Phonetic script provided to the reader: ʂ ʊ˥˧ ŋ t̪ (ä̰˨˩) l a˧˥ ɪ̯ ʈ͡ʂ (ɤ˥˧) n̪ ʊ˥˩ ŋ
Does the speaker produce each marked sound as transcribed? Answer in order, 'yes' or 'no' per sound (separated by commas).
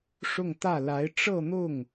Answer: no, yes